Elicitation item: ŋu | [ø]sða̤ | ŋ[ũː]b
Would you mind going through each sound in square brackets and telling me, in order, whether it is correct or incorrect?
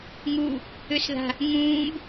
correct, correct

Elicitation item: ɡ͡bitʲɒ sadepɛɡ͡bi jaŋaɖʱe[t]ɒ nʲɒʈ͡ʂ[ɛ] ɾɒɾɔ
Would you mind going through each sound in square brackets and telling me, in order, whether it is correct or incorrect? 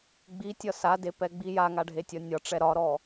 incorrect, correct

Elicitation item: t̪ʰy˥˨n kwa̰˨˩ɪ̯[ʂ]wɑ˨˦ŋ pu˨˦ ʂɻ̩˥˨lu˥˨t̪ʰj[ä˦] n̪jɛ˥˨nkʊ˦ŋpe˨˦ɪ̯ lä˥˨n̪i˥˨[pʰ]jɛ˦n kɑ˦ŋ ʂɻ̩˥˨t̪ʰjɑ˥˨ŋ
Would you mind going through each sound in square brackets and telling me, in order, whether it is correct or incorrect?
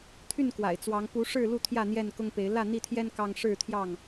incorrect, incorrect, incorrect

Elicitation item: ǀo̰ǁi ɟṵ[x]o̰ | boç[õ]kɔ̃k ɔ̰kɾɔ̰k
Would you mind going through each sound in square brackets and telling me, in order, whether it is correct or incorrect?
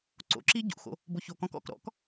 correct, incorrect

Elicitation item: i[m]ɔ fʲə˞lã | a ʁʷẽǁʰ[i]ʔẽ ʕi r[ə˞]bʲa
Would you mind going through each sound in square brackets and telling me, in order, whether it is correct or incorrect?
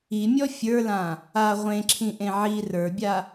incorrect, incorrect, correct

